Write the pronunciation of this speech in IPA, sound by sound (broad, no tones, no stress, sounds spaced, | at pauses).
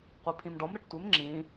qʷ i pʰ ĩ m ɖ ɔ m ɾ ə ʈ tʷ ɪ m ŋ͡ǁ ĩ